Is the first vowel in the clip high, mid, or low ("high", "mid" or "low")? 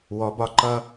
mid